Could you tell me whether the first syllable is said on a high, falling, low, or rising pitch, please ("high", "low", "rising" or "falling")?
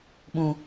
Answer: high